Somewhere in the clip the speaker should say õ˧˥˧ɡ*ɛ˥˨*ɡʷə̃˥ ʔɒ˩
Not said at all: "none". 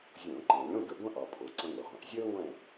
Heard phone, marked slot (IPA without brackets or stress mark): ə˥˨